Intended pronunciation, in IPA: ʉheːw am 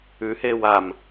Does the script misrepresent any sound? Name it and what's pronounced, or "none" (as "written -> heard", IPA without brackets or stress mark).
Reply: none